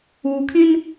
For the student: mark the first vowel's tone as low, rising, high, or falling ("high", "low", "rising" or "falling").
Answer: low